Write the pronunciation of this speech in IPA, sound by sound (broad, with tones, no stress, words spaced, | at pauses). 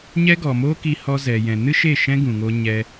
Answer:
ɲɛ˦ɡɔ˨mo˦ ki˧hɔ˧zɛ˨jɛ̃˨ nɨ˦ʃe˦˨ ʃɛ̃˦ɡũ˨ŋo˧ ɲɛ˧